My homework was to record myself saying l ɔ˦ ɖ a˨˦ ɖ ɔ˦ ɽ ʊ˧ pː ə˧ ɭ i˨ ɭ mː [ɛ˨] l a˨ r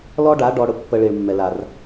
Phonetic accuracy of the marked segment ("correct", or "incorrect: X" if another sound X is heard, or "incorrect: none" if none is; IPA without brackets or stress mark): correct